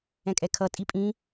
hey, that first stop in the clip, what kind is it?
ejective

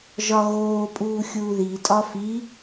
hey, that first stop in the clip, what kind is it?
ejective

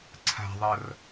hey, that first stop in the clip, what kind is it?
click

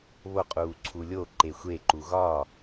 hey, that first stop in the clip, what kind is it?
ejective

